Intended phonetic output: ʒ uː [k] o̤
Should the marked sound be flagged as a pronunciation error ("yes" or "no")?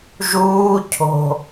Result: yes